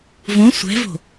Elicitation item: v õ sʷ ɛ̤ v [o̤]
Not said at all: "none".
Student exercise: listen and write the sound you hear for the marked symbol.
o̤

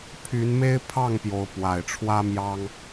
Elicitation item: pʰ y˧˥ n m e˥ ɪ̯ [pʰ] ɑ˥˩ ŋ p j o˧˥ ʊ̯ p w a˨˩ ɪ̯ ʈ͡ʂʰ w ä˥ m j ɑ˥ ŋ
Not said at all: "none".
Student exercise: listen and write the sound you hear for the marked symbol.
pʰ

